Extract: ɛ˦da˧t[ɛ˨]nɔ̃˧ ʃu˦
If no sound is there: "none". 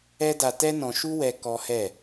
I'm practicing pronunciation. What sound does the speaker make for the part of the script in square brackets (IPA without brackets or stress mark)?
ɛ˦